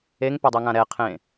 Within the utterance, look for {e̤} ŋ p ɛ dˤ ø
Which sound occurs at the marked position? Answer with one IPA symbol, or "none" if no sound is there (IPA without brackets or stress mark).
e